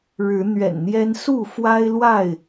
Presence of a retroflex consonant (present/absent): present